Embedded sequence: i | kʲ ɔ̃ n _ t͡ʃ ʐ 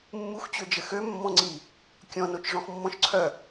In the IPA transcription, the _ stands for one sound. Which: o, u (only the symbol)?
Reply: o